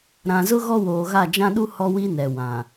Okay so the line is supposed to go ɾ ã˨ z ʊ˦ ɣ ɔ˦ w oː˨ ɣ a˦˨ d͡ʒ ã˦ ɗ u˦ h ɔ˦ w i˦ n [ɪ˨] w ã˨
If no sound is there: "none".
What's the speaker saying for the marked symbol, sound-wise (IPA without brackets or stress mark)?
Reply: ɛ˨